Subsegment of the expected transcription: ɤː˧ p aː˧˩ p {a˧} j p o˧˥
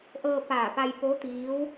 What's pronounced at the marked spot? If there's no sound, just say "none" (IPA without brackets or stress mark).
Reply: a˧